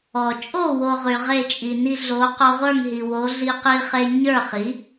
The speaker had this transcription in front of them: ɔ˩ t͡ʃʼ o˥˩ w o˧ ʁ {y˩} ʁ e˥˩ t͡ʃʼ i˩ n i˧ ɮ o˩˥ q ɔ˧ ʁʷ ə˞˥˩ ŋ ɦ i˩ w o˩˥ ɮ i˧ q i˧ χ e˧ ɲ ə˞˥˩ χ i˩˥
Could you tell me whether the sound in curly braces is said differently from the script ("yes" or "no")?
no